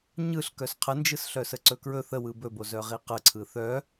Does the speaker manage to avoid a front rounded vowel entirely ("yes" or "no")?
no